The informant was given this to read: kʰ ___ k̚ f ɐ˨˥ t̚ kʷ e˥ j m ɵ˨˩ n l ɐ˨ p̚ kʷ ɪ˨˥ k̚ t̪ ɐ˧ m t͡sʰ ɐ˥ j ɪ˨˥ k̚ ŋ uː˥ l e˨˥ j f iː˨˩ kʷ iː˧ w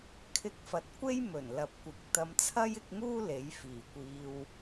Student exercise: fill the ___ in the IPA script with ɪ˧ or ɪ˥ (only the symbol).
ɪ˧